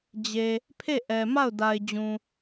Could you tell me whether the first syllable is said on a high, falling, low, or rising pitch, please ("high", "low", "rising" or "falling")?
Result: low